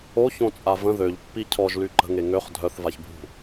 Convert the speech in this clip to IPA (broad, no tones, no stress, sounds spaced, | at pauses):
o ç õ t͡sʼ a v ə̃ ð ø ʎ pː i cʰ ɔ ʒ l y ǃ ə̤ ŋ e ŋ ø χ dʱ œ θ v a ç bʱ ṳ